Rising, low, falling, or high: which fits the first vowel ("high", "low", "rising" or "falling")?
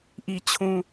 low